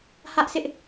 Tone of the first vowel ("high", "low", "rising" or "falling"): high